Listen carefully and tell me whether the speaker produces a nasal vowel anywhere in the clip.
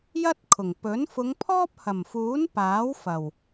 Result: no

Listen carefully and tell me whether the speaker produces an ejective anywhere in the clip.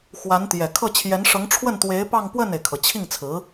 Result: no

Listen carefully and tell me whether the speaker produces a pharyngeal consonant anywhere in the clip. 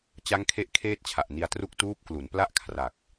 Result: no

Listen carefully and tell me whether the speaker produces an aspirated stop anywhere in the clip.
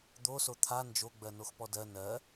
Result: yes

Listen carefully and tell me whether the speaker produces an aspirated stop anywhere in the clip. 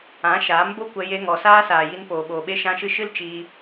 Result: no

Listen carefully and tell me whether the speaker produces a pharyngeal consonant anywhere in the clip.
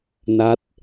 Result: no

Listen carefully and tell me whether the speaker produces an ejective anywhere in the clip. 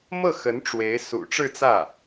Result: no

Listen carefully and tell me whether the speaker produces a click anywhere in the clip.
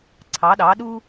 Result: yes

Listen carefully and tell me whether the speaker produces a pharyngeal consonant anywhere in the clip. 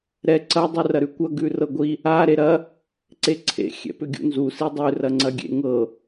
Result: no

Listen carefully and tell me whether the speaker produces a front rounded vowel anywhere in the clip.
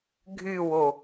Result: yes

